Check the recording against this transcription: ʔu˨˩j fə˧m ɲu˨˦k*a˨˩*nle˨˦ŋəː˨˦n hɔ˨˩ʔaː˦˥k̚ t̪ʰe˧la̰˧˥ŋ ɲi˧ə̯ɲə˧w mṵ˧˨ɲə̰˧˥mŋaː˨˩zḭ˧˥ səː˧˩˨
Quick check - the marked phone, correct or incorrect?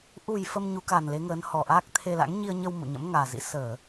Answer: correct